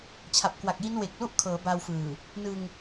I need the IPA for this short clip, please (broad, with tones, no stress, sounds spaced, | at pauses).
t͡ɕʰ a˨˩ p̚ k w a˨˩ k̚ j i˦˥ n w e˨˩ k̚ l u˥˩ ʔ kʰ ɤː˩˦ b a˧ w f ɯː˨˩ | n ɯ˧ ŋ